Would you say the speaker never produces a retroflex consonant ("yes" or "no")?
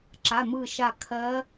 yes